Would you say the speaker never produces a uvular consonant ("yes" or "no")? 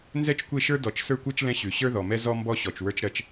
yes